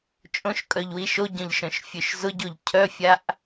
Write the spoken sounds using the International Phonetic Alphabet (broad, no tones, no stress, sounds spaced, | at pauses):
t͡ʃʼ õ ʃ kʼ œ ʎ w i ʃ o ɟ œ̃ ʎ ʃ œ̃ ʃ fʲ ø ʃ z ʊ ɟ o ʎ cʰ œ fʲ a ʔ